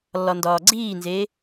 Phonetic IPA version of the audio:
lː ɒ n d ɒː ɡ͡ǀ iː n z eː

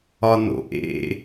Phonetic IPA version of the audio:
ɒ n o̰ ʔ ḛ

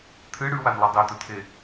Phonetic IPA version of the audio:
t̪ʰ ɨ ɽ ʉ w a n lˠ ɨ dˤ e t̪ ɵ t̪ʰ e

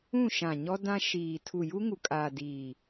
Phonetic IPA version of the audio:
ũ˦˨ ʃ ã˨ ɲ ɔ˦ d ã˦ ʃ iː˨ tʰ u˨ j u˦ ŋ u˨ kʼ aː˨ d iː˨

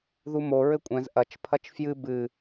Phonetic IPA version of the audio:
ð u m o ɹ ɘ kʷʼ ɛ̃ z ʔ ɐ t͡ʃ pʰ ɐ t͡ʃ f j ɨ b ɨ

